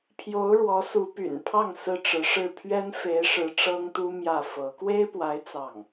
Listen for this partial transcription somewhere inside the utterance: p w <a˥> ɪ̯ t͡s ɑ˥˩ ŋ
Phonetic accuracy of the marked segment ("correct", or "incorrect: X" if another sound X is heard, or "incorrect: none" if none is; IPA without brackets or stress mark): incorrect: a˧˥